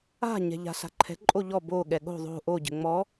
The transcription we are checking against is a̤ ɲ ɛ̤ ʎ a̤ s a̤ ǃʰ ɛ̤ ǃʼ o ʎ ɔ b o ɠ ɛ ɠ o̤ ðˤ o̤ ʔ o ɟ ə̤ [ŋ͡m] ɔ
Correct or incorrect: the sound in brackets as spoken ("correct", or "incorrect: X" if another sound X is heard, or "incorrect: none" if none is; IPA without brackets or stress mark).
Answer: correct